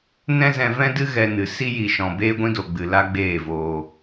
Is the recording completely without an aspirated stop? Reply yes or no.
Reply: yes